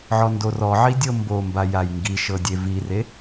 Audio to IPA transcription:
ʕ ɔ n d o r ɔ ʕ i dʲ ɤ m b o m b a j a j ŋ ɡ i ʃ ɤ dʲ e v i r e

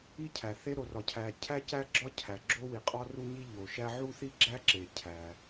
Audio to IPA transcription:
i˥ cʰ æ˩ θ e˥ ɾ o˩ r ɒ˩ cʰ æ˩ cʰ æ˥ c æ˥ ɡ͡ǁ ɒ˥ cʰ æ˩ ɡ͡ǁ o˥ w i˩ qʼ ɒ˥ r u˥ ɲ i˥ ʎ o˩ ʃ æ˥ ʕ u˥ θ i˥ ɡ͡ǁ æ˥ ǁ e˩ cʰ æ˩

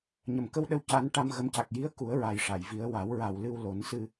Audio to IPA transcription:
ɲ ə˨˩˨ m k ə˧ w ɗ ə˧ w c a˧˥ n ʈ a˧ m ɣ ə˧˥ m c a˨˩ k̚ j i˧˥ ə̯ k u˨˩˦ ə̯ ɹ a˨˩ j ʂ a˨˩˨ j v i˧˥ ə̯ w a˨˩˦ w ɹ a˨˩ w l ɨ˧ w l o˨˩˦ n s ɨ˧

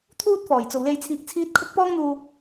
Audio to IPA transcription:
t̪ʰ uː˥ t̚ f ɔː˨˩ j t͡s o˨ w l e˧ j t͡sʰ iː˧ k̚ t͡sʰ iː˥ t̚ kʰ ʊ˥ k̚ p ɔː˥ ŋ n̪ uː˧

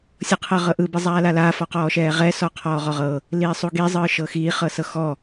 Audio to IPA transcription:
sʲ ɤ qʰ ɤ ʁ ɤ ʔ ɯ b e zˤ aː l a l aː f ɔ q ɔː ʃ ɛː ʁ ɛ s ɔ qʰ ɔː ʁ ɔ ʁ ɤ | l iː sˤ u ɡ i zˤ ɯː ʃ ɤ x iː χ ɤ s ɤ x ɔ

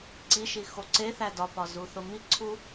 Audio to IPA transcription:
ǀ i ʃ i x o ǀ e θ æ d ɒ p ɒ z u θ o m i ǀʰ u

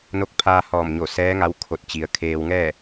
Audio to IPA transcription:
n o˧ k̚ pʰ aː˧ h ɔː˧˩ m ɲ o˧˩ s ɛː˧˥ ŋ a˧˥ w kʰ o˧˩ t̚ t͡ɕ i˩ ə̯ kʰ eː˧ w ŋ ɛː˥˨

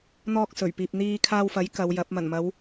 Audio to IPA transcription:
n̪ ɔː˧ k̚ s ɵ˨˩ ɥ p iː˨ p̚ n̪ iː˧ kʰ aː˧ w f ɐ˨˥ j k ɐ˨˧ w j ɐ˨˥ p̚ m ɐ˨˩ n m ɐ˨˧ w

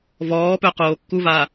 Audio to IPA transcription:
v ɔː p œ q oː kː u v aː

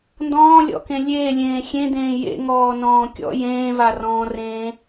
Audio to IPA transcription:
n d ɔ̃ː lʲ ɔ̰ k ẽ lʲ eː lʲ ẽː xʲ ẽ d̪ ẽː j ḛ ŋ ɔː n ɔ̃ː kʲ ɔ̰ j ẽː v a r ɔ̃ː r ẽː

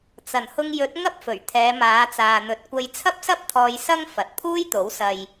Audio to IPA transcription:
t͡s ɐ˨˩ n h ʊ˧ ŋ j ɵ˨˥ t̚ ŋ ɐ˥ p̚ f ɵ˨˩ ɥ t̪ʰ ɛː˨˧ m aː˨˧ t͡s aː˨ n̪ ɵ˨˥ t̚ kʷ ɐ˧ j t͡sʰ ɐ˥ p̚ s ɐ˥ p̚ t̪ʰ ɔː˧ j s ɐ˥ ŋ f ɐ˨ t̚ pʰ uː˥ j t̪ o˨˥ w s ɐ˨ j

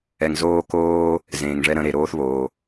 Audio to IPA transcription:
ɛ˩ ŋ z oː˧ k oː˧ | z ẽː˩ ŋ ʐ ɛ˥ ɾ ə̃˧ ɾ e˩ ɾ oː˥ θ β oː˩

